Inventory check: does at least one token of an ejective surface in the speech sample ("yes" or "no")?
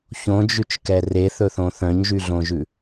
no